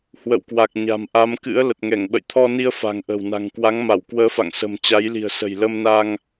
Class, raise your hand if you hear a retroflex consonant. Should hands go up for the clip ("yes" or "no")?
no